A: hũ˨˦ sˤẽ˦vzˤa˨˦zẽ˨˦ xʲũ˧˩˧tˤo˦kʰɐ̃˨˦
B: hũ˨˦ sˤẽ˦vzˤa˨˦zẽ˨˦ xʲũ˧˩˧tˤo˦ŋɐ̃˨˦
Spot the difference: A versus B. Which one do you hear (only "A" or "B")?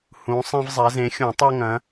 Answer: B